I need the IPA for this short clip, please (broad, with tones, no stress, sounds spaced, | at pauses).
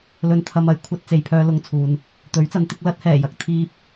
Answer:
l ɵ˧ n t̪ʰ ɐ˧ m ɐ˨ j kʷʰ ɐ˥ t̚ t͡s e˨ j pʰ œː˧ l ʊ˧ ŋ t͡sʰ uː˨ n | t̪ ɵ˨˥ ɥ t͡s ɐ˨˧ n t̪ ɪ˨˥ k̚ l ɐ˥ t̚ h ɛː˨˩ j ɐ˨ k̚ t̪ʰ iː˥ p̚